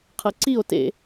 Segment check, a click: present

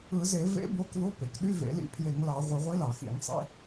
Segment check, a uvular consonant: present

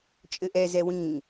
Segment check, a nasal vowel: present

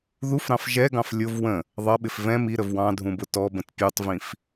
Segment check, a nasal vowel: present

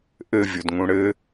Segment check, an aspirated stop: absent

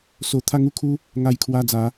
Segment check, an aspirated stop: present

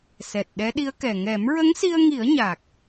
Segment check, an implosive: present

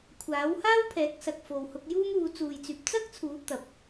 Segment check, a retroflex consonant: absent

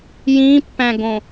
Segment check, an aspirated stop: absent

